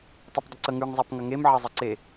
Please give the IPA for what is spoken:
tˤ ɤ p dˤ ə ǀ ə ŋ ʉ ŋ zˤ æ p ŋ ɐ ŋ e m ʕ ɐ zˤ ə ǀ e

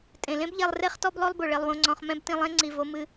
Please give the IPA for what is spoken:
tʼ ẽ˩ l ẽ˥ b ʎ ɛ˧ lˠ r e˥ χ t ɔ˥ b lˠ o˥ lˠ b o˩ ɭ e˧ lˠ w õ˧ ŋ͡ǀ ɔ̃˧ χ m ɛ̃˥ b t ĩ˧ lˠ ẽ˥ ŋ͡ǀ i˧ v o˥ m ɨ˥

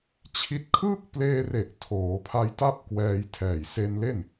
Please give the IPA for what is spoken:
t͡ɕʰ i˦˥ t̚ kʰ ɯː˥˩ k̚ p l eː˧ r e˨˩ ʔ tʰ oː˩˦ pʰ a˧ j t a˥˩ p̚ k w ɛː˧ j tʰ ɛː˨˩ j s e˧ n l e˥˩ n

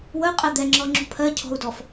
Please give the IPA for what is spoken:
w ə qʼ ɛ d̪ ɛ ŋ͡ǁ ɔ ŋ͡ǁ ṳ pʰ ɜ cʰ ɔ̤ u̯ d ɔ f

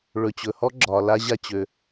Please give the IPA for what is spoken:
ɭ ɵ˨ t͡ɕ ɵ˨ h ɔ˦ ɡ͡ǁ ɒ˧ l a˦ ʑ a˦ t͡ɕ ø˧

